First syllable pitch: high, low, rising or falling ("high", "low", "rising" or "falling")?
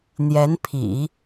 rising